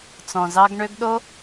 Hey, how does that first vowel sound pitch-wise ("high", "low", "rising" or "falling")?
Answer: low